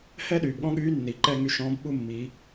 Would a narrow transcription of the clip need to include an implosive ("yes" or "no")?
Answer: yes